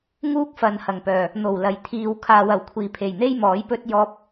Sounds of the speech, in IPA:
ŋuː˥k̚fɐ˨nhɐ˨˩ŋpœː˨˩ | n̪o˨˩w lɐ˨˩jt̪ʰiː˨w kʰaː˨wɐ˨˩wkʷʰiː˨˩pʰe˨˩j n̪e˥jmɔː˨˥j pɵ˥t̚ jɔː˧p̚

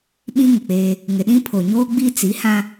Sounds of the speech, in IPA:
ɓĩ˦ŋɪ˨k͡peː˦ | ŋɪ˨ɗĩ˦pʰo˨ ɲoː˦ɡ͡bi˦t͡si˨˦hã˦

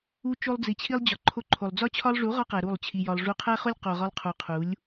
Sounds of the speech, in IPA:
u˧t͡ʃo˧lˠd͡zi˨ t͡ɕʰi˧lˠd͡ʑɒ˨ ǃʰo˧ǃʰo˨lˠd͡zɒ˦t͡ɕʰɒ˦lˠ ʐu˨˦ʁɒ˧qæ˨ ɾu˦˨lˠt͡ɕʰi˧jɒ˧lˠ ʐu˧qʰæ˦ χo˦lʲqo˨ʁɒ˧lˠqʰu˨ qʰu˨˦lʲ

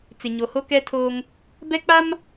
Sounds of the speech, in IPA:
t͡sɪ˨ɲo˨ho˦kɛ˦ tʰoː˦ŋ | bɛ˦k͡pa˦m

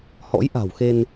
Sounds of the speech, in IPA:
hɔ̰˧˥jʔa̤˨˩wxe˧n

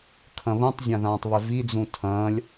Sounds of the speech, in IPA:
kʰɐ̃βũtˤ zʲãðãːtˤβɛvi d͡zũtʰɐ̃ːlʲ

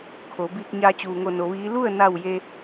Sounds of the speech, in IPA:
kʰo˩˧ biː˧k̚ ɲaː˧t͡ɕuː˩ŋo˧˩ no˩˧ʋiː˧˥ lu˥˨ə̯na˧˩w je˧

